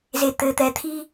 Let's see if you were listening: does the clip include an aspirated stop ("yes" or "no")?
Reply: yes